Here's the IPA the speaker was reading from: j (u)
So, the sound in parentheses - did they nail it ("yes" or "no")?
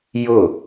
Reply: no